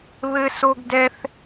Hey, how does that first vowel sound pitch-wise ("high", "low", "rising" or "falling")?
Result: high